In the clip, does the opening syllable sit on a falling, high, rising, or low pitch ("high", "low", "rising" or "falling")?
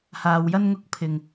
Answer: low